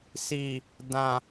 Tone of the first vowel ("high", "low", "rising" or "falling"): low